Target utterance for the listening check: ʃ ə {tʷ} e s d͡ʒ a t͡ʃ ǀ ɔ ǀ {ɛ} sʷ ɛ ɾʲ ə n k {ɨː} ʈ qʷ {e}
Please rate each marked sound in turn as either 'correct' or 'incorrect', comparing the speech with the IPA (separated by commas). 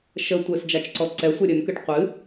correct, correct, incorrect, incorrect